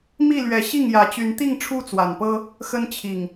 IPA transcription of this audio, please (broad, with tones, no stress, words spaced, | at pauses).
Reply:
mi˥˨lɥɛ˨˦ ɕi˥˨ŋjä˨˦ t͡ɕy˨˦nt̪i˥˨ŋ ʈ͡ʂʰu˦t͡swa˨˩npɤ˦ | xə˦nt͡ɕʰi˨˩ŋ